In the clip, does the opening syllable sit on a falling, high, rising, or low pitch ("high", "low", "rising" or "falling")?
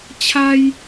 high